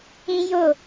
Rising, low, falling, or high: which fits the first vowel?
high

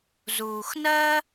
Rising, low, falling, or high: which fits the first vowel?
low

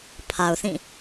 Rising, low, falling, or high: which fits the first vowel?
low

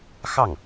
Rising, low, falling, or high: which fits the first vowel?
falling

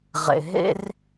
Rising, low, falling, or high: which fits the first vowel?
low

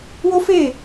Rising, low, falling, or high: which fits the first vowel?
high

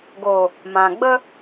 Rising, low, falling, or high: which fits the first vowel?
low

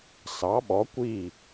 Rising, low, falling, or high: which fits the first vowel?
rising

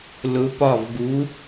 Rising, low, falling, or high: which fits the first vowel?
rising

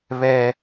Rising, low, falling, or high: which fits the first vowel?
high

